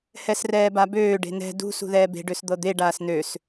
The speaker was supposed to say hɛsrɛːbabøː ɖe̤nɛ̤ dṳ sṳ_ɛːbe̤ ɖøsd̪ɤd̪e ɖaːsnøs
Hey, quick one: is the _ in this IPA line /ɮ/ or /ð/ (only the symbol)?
ð